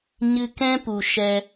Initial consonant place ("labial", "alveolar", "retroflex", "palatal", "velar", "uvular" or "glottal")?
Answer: palatal